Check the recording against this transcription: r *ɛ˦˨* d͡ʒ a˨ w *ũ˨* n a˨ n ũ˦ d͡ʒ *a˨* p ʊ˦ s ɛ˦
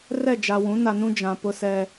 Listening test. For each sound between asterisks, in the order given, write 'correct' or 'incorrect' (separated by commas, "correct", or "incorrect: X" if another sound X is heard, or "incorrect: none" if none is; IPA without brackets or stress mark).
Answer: correct, incorrect: ũ˨˦, incorrect: ã˨